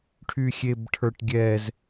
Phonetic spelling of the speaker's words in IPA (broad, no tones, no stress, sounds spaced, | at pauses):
ʈʰ y xʲ e b ʈʰ ə˞ ʈ ɡʲ ɛ z